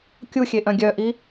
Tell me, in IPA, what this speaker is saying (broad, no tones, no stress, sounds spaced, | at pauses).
kʲ u xʲ e ʔ œ̃ ɡʲ œ ʔ i